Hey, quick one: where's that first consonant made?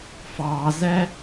lips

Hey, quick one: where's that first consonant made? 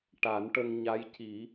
retroflex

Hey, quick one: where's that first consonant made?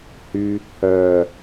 throat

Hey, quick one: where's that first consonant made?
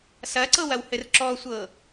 tongue tip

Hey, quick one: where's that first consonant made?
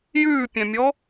palate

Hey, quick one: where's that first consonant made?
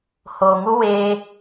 throat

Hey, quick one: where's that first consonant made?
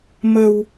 lips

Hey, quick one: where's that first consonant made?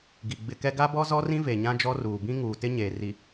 velum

